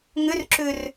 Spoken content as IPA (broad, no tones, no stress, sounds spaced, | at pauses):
ŋ ʏ r ǁ ʏ r